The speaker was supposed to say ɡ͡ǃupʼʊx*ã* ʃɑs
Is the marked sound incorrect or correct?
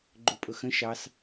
incorrect